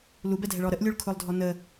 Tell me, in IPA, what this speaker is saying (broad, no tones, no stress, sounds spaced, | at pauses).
l u b ɛ dʱ ɛ ɭ ɔ ɾ ə ʔ lʲ u ɭ kʰ ʊ lˠ dʱ ɔ n ə